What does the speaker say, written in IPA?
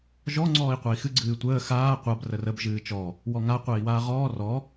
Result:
ʒɔ ŋ͡ǀɔːi̯qʷai̯xɨ ɡ͡ǀɨːtʷəː xaː qʷab rərəb ʒɨːt͡ʃɔ | wɔŋa qʷəːi̯waːʁɔː rɔ

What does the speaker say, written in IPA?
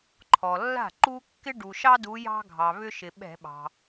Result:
ǃʰɔ˩lːa̤˥˩ǃu˦ kːɪ˦ɖu˩ʃɑ˦ du˨˦jɑ̤˦ ɡʱɑ˩βʏ˦ʃɪ˩ ɓɛ̤˧˩˧ɓɑ̤˩

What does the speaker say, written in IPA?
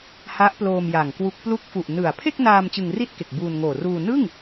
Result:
ha˦˥ʔploː˧m ja˨˩ŋkwu˦˥k̚ plu˦˥k̚fu˨˩ʔnɯ˨˩a̯ pʰe˥˩k̚naː˧m t͡ɕɯ˧ŋri˥˩t̚ke˨˩k̚ buː˧nŋoː˨˩ ruː˧ nɯ˥˩ŋ

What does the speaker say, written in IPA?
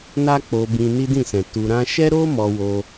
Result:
na˦k͡po˧bĩ˧ ni˦dĩ˦˨sɛ̃˨ tu˧ɾã˦ ʃɛ˦ɾo˦ mɔ˧wo˧

